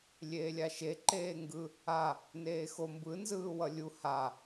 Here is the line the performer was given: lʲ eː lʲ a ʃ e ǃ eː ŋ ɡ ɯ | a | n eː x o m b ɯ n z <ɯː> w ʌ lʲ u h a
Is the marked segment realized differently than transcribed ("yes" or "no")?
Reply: no